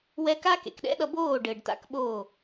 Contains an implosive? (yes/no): yes